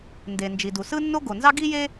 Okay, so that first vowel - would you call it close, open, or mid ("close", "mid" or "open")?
mid